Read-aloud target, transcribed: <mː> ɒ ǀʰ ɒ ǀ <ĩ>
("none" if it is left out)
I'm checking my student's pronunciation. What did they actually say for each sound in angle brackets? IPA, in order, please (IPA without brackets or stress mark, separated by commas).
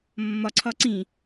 mː, ĩ